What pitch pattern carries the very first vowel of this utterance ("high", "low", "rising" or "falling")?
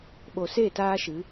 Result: low